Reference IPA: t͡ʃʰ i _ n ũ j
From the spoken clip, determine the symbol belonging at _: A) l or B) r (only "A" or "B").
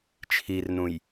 B